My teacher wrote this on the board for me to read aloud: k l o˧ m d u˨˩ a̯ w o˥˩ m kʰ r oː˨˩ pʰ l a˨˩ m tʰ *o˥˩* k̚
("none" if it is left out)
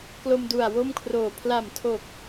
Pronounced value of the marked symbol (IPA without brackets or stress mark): o˨˩